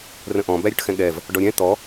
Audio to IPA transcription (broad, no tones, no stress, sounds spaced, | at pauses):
r ə̃ ʔ ɔ̃ b æ ɾʲ ʊ ʈ x ɛ̃ ɠ ɛ v | ɖ ɔ ɾʲ ɛ̃ t̪ ɔ